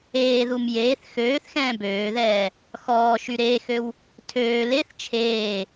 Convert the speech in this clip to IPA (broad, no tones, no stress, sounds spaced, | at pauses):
eː ð u m j eː θ x øː θ x ɛ̃ː b øː ð ɛː | x ɔː ʃ y ɾ eː x ø w | tʰ øː l e θ t͡ʃʰ eː